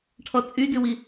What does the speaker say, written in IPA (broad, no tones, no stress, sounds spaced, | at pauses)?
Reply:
ʈʰ ɔ t͡sʼ y d ʉ w i